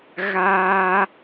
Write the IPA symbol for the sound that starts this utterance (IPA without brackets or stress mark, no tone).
ɣ